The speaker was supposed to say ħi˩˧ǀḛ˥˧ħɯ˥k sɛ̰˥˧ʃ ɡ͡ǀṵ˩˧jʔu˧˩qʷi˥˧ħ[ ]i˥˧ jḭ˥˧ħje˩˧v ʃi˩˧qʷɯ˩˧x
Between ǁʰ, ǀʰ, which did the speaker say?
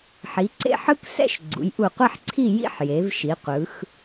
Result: ǀʰ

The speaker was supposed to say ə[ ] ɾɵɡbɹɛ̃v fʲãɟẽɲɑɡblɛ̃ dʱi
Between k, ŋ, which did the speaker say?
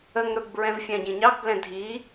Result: ŋ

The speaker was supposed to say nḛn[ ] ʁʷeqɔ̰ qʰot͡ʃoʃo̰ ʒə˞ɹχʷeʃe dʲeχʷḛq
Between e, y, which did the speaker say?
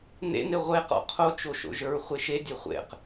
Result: e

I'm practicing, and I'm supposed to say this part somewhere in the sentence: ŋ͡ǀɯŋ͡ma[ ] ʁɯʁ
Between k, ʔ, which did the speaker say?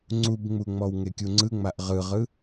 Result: ʔ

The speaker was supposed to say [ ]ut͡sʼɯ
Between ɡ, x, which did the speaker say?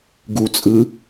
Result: ɡ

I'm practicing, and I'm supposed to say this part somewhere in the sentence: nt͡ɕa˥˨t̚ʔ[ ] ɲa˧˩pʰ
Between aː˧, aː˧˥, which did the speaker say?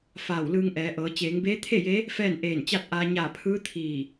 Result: aː˧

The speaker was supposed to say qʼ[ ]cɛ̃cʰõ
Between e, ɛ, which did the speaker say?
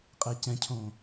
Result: e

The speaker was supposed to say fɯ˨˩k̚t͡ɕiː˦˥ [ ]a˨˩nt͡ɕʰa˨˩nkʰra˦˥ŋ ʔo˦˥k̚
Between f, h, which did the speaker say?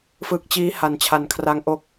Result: h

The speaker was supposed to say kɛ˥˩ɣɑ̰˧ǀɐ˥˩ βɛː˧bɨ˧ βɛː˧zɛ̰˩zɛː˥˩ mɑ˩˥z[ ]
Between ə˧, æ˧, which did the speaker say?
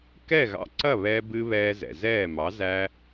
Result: æ˧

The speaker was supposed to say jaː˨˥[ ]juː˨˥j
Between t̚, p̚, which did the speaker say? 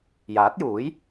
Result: t̚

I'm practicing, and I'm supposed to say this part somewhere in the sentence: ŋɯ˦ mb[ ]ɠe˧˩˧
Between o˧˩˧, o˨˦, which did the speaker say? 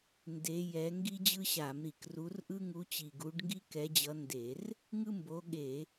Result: o˨˦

